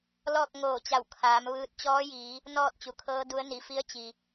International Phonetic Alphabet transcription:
l ɔː˥˨ k̚ ŋ oː˧˩ t͡ɕ a˧˩ w kʰ aː˩˧ m ʋ ɯː˧ t̚ t͡ɕ ɔː˧˥ j iː˩˧ | n ɔː˥˨ t̚ t͡ɕ u˩ kʰ ɤː˧˥ d u˧˥ ə̯ n i˩˧ f i˧˥ ə̯ t͡ɕ i˩

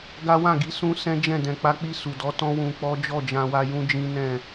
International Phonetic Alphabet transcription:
ɡ a˦ w ã˦˨ ɡ i˧ s ũ˦ s ɛ̃˦ d͡ʒ ɛ̃˦˨ d ɛ̃˨ k͡p a˧ k͡p i˧ s u˨ d ɔ˨˦ t ɔ̃˦ w ũ˧ k͡p ɔ˦ d͡ʒ ɔ˦˨ d͡ʒ ã˧ w a˧ j ũ˦ d͡ʒ ĩ˦ n ɛ̃˦˨

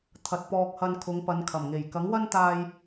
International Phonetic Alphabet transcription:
t̪ʰ ɐ˨ t̚ p ɔː˧ k̚ h ɐ˧ n kʰ ʊ˨˧ ŋ p ɐ˨˧ n kʰ ɐ˨˩ m ŋ e˨˩ j k ɐ˨˥ ŋ w ɐ˥ n t̪ aː˧ j

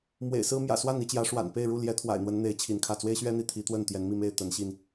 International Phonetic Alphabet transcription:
m w ḛ˨˩ ɪ̯ s ɹ̩˦ m j ä̰˨˩ s w a˥˨ n i˨˦ t͡ɕ j ä˨˦ ʂ w a̰˨˩ n p e˥˨ ɪ̯ ɻ u˥˨ l j ɛ˨˦ t̪ʰ w a̰˨˩ ɪ̯ n̪ w ə˨˦ n n̪ e˨˦ ɪ̯ t͡ɕʰ i˨˦ n kʰ ä˥˨ t͡s w e˦ ɪ̯ ɕ ɥ ɛ˦ n̪ i˨˦ t̪ʰ i˨˦ t̪ w ə˥˨ n t̪ j ɛ˨˦ n m i˥˨ m e˥˨ ɪ̯ t̪ ə˨˦ n ɕ i˧ n

